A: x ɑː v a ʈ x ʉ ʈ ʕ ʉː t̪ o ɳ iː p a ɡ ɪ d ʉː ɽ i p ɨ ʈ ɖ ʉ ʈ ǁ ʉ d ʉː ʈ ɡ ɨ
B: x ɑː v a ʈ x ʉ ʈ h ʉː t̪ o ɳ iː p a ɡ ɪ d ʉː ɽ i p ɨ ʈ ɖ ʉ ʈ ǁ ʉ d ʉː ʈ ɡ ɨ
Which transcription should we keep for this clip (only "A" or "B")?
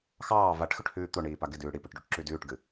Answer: B